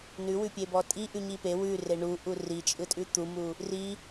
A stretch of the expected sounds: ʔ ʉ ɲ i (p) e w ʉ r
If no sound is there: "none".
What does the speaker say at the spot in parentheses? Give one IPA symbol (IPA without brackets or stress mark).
p